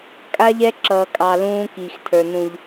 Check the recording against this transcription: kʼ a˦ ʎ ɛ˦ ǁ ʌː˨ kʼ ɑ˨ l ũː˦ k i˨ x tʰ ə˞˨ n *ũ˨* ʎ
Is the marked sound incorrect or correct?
correct